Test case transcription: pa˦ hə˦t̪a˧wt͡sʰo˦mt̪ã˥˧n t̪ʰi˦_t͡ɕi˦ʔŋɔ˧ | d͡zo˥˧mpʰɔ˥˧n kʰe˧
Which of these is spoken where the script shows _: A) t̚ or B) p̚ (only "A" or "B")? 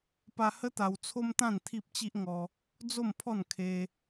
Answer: B